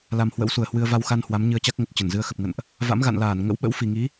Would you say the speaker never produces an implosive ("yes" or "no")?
no